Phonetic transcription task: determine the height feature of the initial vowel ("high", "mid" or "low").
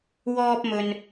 mid